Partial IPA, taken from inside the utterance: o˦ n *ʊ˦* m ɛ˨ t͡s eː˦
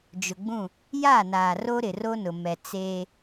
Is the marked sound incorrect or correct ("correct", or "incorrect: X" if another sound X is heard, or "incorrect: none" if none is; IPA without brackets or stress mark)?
incorrect: ʊ˨